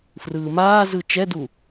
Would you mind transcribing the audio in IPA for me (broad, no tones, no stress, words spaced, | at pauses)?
frɯːmaːzɯ t͡ʃɛdu